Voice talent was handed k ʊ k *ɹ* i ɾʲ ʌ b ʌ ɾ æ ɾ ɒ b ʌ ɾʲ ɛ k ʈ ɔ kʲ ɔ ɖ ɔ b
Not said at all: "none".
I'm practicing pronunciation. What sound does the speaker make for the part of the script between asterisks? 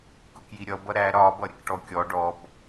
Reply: j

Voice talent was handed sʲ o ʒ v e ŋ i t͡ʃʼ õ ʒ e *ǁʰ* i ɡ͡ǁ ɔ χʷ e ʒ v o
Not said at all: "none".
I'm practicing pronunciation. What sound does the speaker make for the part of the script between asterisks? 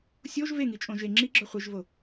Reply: ŋ͡ǁ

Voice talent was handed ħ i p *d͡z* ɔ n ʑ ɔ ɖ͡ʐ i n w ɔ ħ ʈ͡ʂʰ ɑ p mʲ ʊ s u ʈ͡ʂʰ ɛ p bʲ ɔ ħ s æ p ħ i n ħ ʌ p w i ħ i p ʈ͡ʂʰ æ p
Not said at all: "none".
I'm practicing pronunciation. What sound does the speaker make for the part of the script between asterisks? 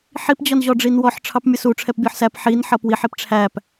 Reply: d͡ʑ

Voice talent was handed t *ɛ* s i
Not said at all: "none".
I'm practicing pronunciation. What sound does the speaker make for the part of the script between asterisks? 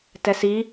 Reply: ɛ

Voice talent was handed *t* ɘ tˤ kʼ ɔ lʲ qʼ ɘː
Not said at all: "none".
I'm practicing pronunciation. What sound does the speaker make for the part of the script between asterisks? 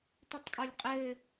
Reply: t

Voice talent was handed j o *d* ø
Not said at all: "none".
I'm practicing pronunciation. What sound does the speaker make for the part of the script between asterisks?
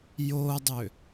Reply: dˤ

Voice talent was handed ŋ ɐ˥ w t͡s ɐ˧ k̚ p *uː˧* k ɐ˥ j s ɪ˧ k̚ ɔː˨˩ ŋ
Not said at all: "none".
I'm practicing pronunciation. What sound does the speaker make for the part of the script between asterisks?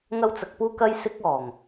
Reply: uː˥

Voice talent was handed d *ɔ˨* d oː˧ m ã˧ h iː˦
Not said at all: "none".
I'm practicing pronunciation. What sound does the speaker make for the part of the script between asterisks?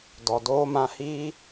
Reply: ɔ˨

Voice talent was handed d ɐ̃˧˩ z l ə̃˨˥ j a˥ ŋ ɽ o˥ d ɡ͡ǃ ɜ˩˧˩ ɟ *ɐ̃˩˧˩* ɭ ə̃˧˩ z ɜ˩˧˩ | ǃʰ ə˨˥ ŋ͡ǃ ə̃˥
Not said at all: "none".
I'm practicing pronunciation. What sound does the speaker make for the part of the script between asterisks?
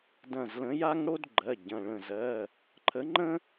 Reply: ɐ̃˩˧˩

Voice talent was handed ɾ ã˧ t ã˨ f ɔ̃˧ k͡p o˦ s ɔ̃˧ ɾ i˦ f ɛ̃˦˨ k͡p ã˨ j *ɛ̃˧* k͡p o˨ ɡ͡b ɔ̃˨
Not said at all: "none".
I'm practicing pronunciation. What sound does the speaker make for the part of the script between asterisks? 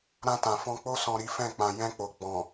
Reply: ɛ̃˧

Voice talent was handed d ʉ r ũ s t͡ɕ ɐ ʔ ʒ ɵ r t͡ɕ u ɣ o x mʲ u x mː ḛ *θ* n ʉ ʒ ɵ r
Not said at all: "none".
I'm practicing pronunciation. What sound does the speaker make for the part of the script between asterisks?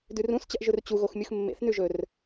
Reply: θ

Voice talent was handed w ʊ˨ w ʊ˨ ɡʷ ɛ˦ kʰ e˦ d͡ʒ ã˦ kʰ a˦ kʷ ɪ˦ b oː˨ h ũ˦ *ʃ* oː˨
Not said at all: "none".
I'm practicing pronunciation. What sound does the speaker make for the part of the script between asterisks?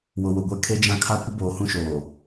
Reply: ʃ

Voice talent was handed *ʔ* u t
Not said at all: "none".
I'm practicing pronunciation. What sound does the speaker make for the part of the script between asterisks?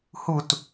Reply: h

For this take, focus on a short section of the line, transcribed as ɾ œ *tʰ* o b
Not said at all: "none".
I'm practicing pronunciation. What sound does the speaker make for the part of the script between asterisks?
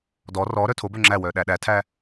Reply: tʰ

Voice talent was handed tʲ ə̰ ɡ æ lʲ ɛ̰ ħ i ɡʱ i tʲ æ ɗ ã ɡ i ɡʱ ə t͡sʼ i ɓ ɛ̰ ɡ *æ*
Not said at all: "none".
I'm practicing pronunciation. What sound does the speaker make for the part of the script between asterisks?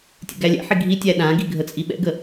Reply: ə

